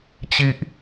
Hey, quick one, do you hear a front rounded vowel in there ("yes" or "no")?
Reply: no